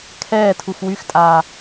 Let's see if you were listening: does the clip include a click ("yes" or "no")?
no